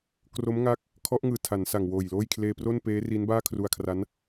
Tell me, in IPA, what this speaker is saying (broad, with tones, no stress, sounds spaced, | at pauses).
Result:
k r o˦˥ m ŋ a˦˥ k̚ | kʰ ɔ˦˥ ʔ ŋ ɯː˨˩ tʰ a˩˦ n s a˨˩ ŋ w oː˨˩ j l oː˥˩ j kʰ l eː˧ p r o˥˩ n p eː˦˥ r i˦˥ n b aː˥˩ kʰ r u˧ a̯ kʰ r a˦˥ n